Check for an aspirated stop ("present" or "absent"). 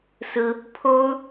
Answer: present